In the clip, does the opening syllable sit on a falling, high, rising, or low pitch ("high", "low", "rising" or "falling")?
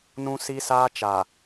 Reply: high